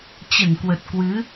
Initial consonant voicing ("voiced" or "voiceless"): voiceless